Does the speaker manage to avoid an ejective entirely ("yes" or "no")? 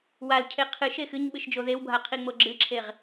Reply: yes